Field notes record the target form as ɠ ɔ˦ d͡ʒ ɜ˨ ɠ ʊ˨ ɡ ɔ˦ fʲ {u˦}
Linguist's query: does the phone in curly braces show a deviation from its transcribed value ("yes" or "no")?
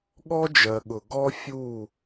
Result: yes